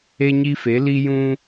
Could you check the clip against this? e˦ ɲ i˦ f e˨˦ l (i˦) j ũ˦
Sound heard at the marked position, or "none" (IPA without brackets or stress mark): i˦